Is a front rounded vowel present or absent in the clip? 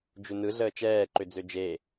present